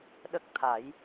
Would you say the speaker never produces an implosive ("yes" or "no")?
no